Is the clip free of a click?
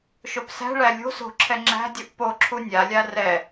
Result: no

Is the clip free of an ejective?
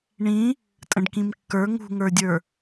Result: no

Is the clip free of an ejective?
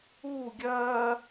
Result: yes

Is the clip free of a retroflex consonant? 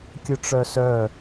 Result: no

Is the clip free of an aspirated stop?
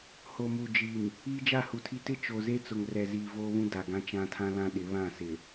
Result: no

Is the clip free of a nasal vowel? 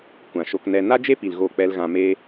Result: no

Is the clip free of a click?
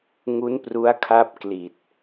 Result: yes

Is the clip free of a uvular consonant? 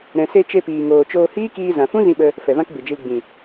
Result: yes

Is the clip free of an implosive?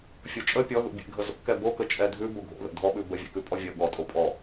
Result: no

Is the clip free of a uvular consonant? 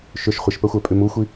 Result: no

